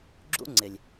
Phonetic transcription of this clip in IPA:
ɡ͡ǁ ṵ˦ ŋ͡ǀ ɪ˨ lʲ

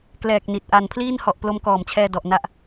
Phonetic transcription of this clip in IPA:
k l ɛː˨˩ k̚ n i˨˩ t̚ ʔ a˧ n pʰ l iː˥˩ n h ɔ˨˩ ʔ p l o˦˥ m k ɔː˨˩ m t͡ɕʰ ɛː˧ d ɔ˨˩ ʔ n a˥˩ ʔ

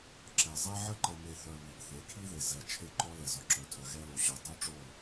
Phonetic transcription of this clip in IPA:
ǁ ɛ˨ zˤ ɛ˦ ʕ ə˦ ǃ ə˨ m e˨ θ œ˨ β i˨ ɡ θ e˨˦ kʰ i˦ ð e˨ z ɛ˨ t͡ʃʰ e˦ ǃ ɔ˦ l ɛ˨ z ɔ˨ ǁ œ˨ tʰ œ˨ ɣ ɛ˦ l o˨ ɕ œ˨ dˤ œ˦ ʈ͡ʂ o˦˨

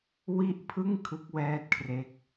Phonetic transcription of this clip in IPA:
w i˥˩ ʔ pʰ ɯ˥˩ ŋ kʰ ɯ˦˥ k̚ w ɛː˦˥ t̚ kʰ r e˦˥ k̚

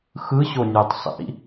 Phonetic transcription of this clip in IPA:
x ɯ ɕ o nʲ ɯ tˤ sˤ ḭ

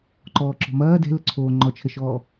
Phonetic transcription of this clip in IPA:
ǃ ɔː ǁ ɔ̤ m ɐː d ɛ̤ l ə ǀʰ oː ŋ͡ǃ ɔ t͡ʃʰ ə ʃ ɔː

